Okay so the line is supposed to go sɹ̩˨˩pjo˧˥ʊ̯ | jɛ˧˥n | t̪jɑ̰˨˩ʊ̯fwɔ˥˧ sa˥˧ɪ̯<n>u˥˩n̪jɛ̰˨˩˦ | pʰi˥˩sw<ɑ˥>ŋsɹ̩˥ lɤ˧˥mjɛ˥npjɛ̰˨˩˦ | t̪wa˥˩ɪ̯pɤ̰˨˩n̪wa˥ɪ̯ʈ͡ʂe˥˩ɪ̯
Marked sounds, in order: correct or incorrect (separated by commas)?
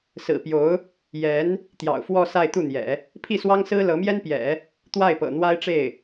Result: incorrect, correct